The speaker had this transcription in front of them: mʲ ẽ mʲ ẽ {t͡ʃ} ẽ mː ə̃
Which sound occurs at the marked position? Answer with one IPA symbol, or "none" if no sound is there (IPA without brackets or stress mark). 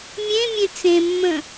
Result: t͡s